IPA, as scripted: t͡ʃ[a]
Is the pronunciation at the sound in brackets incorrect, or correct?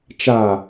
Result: correct